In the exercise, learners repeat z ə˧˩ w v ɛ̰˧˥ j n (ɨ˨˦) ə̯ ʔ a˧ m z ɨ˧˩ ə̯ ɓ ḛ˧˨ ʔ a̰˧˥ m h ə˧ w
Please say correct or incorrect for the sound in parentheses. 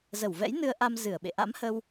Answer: incorrect